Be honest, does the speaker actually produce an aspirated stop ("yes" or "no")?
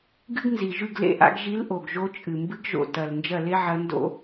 no